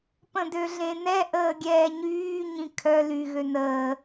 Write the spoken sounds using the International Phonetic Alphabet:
p ə̃ d ø ɮ ẽ n ɛ ʔ əː ɡʲ ɛː ɲ yː ɲ ĩ kʰ œ l y ɣ ø n əː

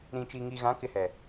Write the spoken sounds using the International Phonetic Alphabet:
ɾ ĩ˨ t͡ʃ i˨ ŋ i˨ ɣ ã˨˦ k ɪ˦ h ɛ˨

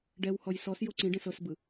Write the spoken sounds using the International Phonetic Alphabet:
ɖ ɛ w h ɔ j s ɔ s j o ǀ ĩ ɖ ẽ s ɤ s b ɯ

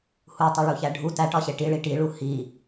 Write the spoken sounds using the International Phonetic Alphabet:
h u tˤ i ɭ u ç æ ɖʱ u t æ ʈ ɒ ɕ e ʈ i ɭ i ʈ i ɭ u h i

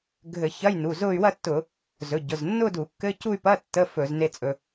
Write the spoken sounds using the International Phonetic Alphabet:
ɡʱ ɘ˧˩˧ ç ɐ˧˥˧ j n u˩˧˩ z ʊ˥˧ y̯ w ɐ˥˧ tː ʊ˧˩˧ | z ɵ˩˧˩ ɟ ʊ˩˧˩ z nː ʊ˥˧ d u˧˩˧ kː ɘ˧˥˧ c u˥˧ y̯ p ɐ˧˥˧ tː ə˧˥˧ f ɵ˧˩˧ z n e˧˥˧ t͡sʼ ɵ˩˧˩

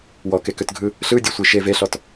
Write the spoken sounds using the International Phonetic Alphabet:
w ɔ k e k ø t ɡʱ ɯ | ɬ ɯ dʲ ø sʷ i ʃ e v e ɬ ɔ t

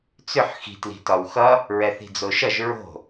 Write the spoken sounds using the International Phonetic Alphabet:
t͡s ʏ ħ x i̤ t l i̤ t ɒ w x ʌ | ɹ ɛ θ i̤ d͡z o ʃ ʌ ʒ ɹ o̤

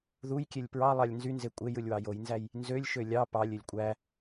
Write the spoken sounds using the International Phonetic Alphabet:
ð u j kʲ e lʲ p ɹ ɑ lˠ ɑ lʲ n z y n z e kʷʼ e j ɯ lʲ w ɑ j o j n z æ j | n z ø lʲ ʃ ø lʲ ɑ p ɑ lʲ ø lʲ kʷʼ æ

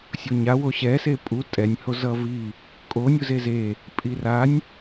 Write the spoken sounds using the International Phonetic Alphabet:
sʲ o ɲ a w o ɕ ɛ s e pʼ u tʼ ɛ nʲ h o z ʌ v i | kʼ o nʲ u z e z e | pʼ i r a nʲ

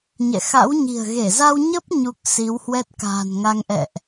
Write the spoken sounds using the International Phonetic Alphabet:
ɲ ɛ̰˧˨ x a̰˧˥ w ɲ i̤˨˩ ə̯ ɣ e˧˩ z a˧ w ɲ ə˦˥ p̚ ɲ u˦˥ k̚ s i˨˦ w h w ɛ˦˥ t̚ k a̤ː˨˩ n ŋ a˧ ŋ ʔ ɛ̰˧˨ ʔ

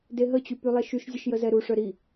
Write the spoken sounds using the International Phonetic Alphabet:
d e ɦ ə t͡ɕ y p y lˠ e ʃ y ʃ zʲ ə ʃ j ə z ɛ ɾ u ʂ œ ɾ i

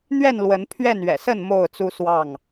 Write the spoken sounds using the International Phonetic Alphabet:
n̪ ɥ ɛ˥˨ n l w ə˨˦ n pʰ ɥ ɛ˥˨ n ɥ ɛ̰˨˩ s ə˥˨ n m o˥˨ ʊ̯ t͡s u˦ s w ɑ˥˨ ŋ

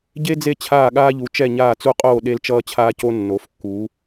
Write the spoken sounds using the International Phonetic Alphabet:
ɟ e˦ d͡z e˦˨ t͡ɕʰ aː˦˨ ɠ aː˦ ʎ u˩˧ t͡ʃ ɛ˦˨ ɲ aː˦˨ t͡s u˦ qʼ oː˦˨ ɗ e˦ l t͡ʃ ʌː˦ t͡ɕʰ aː˦ c o˦ nː o˩˧ f kː u˩˧

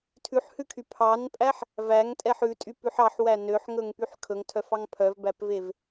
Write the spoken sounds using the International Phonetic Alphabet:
tʰ ʉ ħ h ʉ kʰ y pʰ ɑ n pʼ æ ħ | v æ ŋ tʼ ɛ ħ ʉ tʼ y p ʉ ħ ɑ ħ w æ n ø ħ ŋ ɵ ŋ p y ħ kʰ ɵ ŋ tʰ œ f ɑ ŋ pʰ œ v b æ p v e v

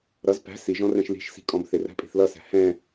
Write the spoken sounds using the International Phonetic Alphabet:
ɾ ʌ z p æ̤ s i ʒ ɔ̃ r ɛ̃ ʃ l i̤ ʃ s i̤ kʼ ɔ̃ b θ ɪ r æ̤ pʼ i̤ θ l ʌ s æ̤ h ɛ̃

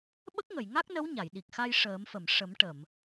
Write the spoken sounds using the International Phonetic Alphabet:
ɓ ə˦˥ k̚ ŋ ə˨˩˨ j ŋ a˦˥ k̚ n ə˧˥ w ɲ a˨˩˨ j ɗ i˨˩ k̚ x a˧ j ʂ əː˨˩˦ m f ə˨˩˨ m ʂ ə˨˩˦ m ʈ ə˨˩˨ m

